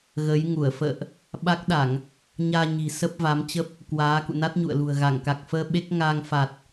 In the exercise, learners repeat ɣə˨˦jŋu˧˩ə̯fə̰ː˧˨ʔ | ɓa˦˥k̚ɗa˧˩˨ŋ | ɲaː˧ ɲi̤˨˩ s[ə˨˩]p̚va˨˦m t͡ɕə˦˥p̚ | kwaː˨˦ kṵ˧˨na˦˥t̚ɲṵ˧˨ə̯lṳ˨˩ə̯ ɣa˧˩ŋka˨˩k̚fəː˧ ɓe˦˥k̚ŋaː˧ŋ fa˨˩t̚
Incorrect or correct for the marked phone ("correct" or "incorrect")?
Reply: incorrect